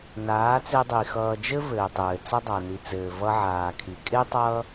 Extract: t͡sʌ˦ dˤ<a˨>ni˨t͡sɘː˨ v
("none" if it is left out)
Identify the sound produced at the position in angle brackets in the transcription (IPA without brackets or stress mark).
a˨